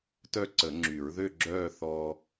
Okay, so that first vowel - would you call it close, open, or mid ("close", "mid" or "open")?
mid